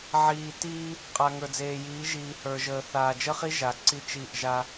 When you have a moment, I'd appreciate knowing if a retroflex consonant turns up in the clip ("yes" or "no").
no